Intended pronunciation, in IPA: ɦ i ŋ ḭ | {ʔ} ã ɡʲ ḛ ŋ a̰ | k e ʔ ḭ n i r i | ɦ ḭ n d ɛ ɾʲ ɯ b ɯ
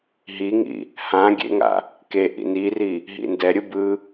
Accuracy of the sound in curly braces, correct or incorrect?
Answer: incorrect: h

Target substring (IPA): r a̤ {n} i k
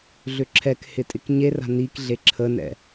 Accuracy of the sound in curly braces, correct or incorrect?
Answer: correct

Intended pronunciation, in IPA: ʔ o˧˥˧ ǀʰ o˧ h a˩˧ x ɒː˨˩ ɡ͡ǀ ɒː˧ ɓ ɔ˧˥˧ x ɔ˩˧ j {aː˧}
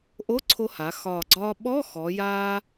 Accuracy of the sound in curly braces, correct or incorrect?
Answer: correct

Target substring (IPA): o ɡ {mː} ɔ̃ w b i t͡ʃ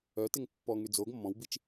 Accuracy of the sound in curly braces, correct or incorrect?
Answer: correct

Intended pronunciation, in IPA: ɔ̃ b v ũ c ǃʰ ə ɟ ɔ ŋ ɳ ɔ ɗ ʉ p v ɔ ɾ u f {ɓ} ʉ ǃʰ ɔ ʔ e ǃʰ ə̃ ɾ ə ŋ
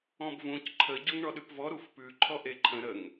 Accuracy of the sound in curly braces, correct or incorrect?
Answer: incorrect: p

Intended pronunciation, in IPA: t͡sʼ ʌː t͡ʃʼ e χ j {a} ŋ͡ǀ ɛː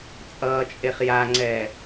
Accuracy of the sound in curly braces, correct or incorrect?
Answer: correct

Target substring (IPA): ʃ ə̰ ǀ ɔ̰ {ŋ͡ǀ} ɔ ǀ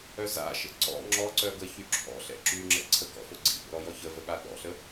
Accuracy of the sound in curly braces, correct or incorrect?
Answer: incorrect: ŋ͡ǁ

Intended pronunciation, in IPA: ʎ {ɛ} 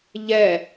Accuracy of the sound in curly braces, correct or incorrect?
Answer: correct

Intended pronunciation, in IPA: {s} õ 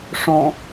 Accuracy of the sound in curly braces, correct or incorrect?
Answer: incorrect: ʂ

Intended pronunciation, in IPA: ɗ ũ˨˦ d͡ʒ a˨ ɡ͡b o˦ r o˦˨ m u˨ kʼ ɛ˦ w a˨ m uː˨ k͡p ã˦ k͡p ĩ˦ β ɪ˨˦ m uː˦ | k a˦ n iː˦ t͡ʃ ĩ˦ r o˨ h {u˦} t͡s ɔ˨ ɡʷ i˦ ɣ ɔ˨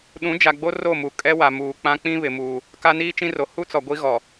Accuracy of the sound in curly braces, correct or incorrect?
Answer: correct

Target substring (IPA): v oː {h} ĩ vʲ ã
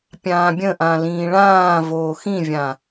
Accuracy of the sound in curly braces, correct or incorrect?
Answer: incorrect: x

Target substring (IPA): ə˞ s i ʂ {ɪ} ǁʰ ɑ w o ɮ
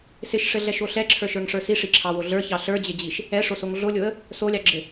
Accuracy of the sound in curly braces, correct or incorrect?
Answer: incorrect: i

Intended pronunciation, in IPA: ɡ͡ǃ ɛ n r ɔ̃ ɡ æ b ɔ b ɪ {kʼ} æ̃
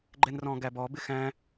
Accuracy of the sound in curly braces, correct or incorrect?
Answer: incorrect: x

